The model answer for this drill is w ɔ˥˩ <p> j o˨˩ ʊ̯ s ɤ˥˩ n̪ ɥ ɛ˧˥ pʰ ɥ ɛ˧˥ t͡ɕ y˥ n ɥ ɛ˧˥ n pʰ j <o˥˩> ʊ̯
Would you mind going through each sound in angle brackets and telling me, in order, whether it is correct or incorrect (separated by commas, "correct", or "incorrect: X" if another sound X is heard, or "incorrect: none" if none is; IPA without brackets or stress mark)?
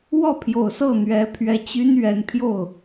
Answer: incorrect: pʰ, correct